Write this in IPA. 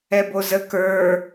ɛ b o z ə k ə˞

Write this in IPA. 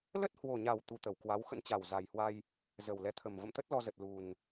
l ə˦˥ t̚ h w o˨˩ ɲ a˨˩ w t̪ u˨˦ t̪ ə˧˩ w k w a˨˦ w x ə̰˧˥ n t͡ɕ a˨˩ w z a˨˩ j h w a˧ j | z ə˨˩ w l ɛ˨˦ t̪ʰ ə˨˩ m v ə̰˧˨ m t̪ ə˦˥ t̚ l ɔ˧ z ə˨˩ t̚ l u˨˩ n

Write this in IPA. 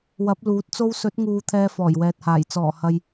w ɐ˨˥ p̚ l uː˨˥ t̚ t͡s o˧ w s ɵ˨˥ t̚ ŋ uː˧ t̪ʰ ɛː˧ f ɔː˨˩ j w ɛː˨ t̚ h aː˨˩ j t͡s ɔː˨˩ h ɐ˨ j

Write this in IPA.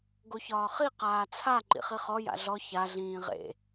ɡ o ç ɒː χ i q aː t͡sʰ a ǃ ḭ χ i χ ɔ j a̰ ɮ ɔ ç a ɮ ĩː ʁ ḛ

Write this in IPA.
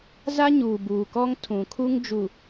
z a˦ ɲ uː˨ b uː˨ k ɔ˦ ŋ tʰ ũ˨ kʰ u˦ ŋ d͡ʒ u˨

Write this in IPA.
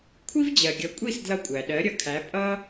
kʷʰ i˥ v d͡ʑ ɜ˩ ɡʲ ʌ˩˥ kʷʼ i˥˩ s d l ʌ˧ kʷʼ æ˩ ɗ ɜ˩˥ ɾʲ ʌ˩˥ kʰ æ˩˥ pʼ ʌ˥

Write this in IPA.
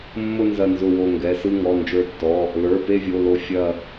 mː ʊ˥˧ n z ɐ˧˩ n z ʊ˧˩ w o˧˩ ŋ ɡ ɛ˩˧˩ s ɯ˥˧ ŋ ɔ˩˧˩ n d͡ʒ ə˞˧˩ tː ɔ˩˧˩ | l ə˞˩˧˩ p e˥˧ vʲ o˩˧˩ l o˧˩ fʲ ɐ˧˩

